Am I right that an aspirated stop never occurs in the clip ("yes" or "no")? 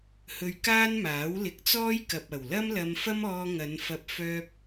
yes